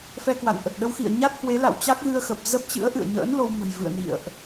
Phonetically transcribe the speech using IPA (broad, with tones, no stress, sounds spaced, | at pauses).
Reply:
f ɛ˧ k w a̰˧˨ n ʔ ə˨˩ t̚ ɗ ə˧ w x ḭ˧˨ ə̯ ɲ a˦˥ t̚ h w e˨˦ l a̰˧˨ w t͡ɕ a˦˥ k̚ ɣ ɨ˧ ə̯ x ə˨˩ p̚ z ə˦˥ p̚ t͡ɕ ɨ̰˧˥ ə̯ ʔ ɨ̰˧˨ ə̯ ɲ ə̰ː˧˥ n l o˧ w m ə̤˨˩ j v ɨ̰˧˨ ə̯ n ḭ˧˨ ə̯ ʔ